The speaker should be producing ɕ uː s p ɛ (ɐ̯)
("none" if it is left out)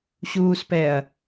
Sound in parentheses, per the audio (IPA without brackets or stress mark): ɐ̯